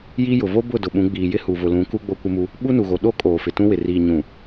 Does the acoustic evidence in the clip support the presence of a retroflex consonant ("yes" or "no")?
no